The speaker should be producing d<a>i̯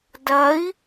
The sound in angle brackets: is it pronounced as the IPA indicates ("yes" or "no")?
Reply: no